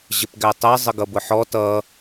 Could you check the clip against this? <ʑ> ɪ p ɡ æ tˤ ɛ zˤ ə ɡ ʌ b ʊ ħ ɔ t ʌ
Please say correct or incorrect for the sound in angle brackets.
correct